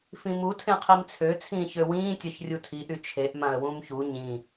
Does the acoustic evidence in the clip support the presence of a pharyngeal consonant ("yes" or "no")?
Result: no